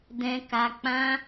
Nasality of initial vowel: nasal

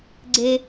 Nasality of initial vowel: oral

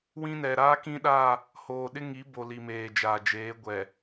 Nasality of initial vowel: nasal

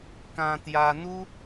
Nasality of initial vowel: nasal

